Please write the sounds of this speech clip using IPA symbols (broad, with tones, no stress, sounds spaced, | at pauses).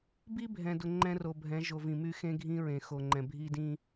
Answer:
b i˦ bʱ ɛ̃˨ d ʊ˨ ŋ͡ǃ ɛ̃˦ r o˨ bʱ ɛ̃˨˦ ʒ o˨ v ĩ˨ m y˦ x ẽ˦ ɡʱ ĩ˦ ɹ ẽ˨ x o˨ ŋ͡ǃ ɛ̃˨ bʱ i˦ d ĩ˦